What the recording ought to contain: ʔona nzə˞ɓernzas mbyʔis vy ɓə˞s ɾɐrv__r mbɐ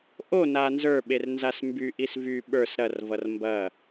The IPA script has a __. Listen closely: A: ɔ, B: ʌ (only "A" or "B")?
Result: B